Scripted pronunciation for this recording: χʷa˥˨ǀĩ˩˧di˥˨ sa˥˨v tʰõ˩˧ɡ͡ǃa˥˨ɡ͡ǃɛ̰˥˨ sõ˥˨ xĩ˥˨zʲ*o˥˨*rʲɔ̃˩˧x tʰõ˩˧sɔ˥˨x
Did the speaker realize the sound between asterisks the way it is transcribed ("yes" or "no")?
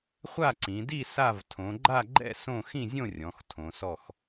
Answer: no